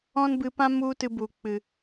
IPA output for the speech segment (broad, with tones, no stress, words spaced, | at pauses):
ɔ̃˦nbɨ˧pã˦ mu˦tɨ˧bu˨ k͡pɨ˨